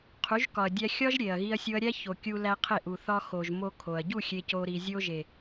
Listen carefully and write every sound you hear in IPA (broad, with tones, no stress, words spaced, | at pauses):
qʰu˨˦ʒkɒ˨ɐ̯dʲæ˦ xʲɒ˦ʒ ɾʲe˨ɐ̯ɣi˦ɐ̯sʲo˦ɐ̯ ɾʲæ˦ço˨ kʲu˦læ˦qʰe˦˨ʔu˨ θɒ˦xo˨ʒ mo˦kʰo˨ɐ̯ ɟu˦˨ xʲe˦co˦ ɾi˨zʲo˦ʒe˨